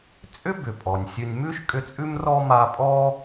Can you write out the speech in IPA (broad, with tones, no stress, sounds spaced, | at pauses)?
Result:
t͡sʼ ʏ˥ b ʏ˩ pʼ ɔ˩ nʲ sʲ ʉ˨ nʲ m ʉ˥ ʃ kʼ ʏ˦ t͡sʼ ʉ˥ m r ɔ˥ m a˦ pʼ ɔ˥